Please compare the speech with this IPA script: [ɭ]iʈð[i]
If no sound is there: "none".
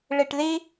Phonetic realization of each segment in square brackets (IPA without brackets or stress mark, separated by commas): ɭ, i